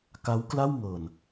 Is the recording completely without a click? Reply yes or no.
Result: yes